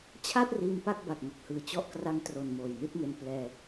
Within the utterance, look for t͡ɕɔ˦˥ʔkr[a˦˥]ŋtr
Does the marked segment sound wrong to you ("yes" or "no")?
yes